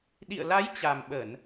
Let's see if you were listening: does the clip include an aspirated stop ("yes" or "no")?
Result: no